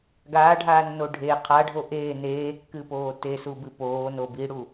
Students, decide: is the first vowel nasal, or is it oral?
oral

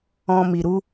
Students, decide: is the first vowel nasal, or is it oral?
nasal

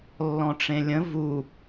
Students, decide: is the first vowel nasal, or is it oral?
nasal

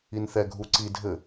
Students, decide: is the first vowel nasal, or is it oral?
oral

